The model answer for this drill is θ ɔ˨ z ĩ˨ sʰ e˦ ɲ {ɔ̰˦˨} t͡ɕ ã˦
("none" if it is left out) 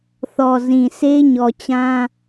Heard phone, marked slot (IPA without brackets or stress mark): ɔ˨